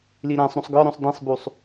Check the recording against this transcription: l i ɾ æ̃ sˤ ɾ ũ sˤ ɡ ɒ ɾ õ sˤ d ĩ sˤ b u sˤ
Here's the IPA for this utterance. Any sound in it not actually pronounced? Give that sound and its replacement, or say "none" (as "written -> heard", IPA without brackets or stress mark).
none